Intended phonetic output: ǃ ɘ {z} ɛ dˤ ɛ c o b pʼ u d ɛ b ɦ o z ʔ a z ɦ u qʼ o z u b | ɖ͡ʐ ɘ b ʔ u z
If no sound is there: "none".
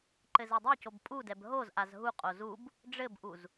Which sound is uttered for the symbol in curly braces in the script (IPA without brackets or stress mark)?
z